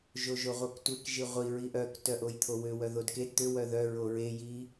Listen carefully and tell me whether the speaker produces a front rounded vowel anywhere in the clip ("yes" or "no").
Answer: yes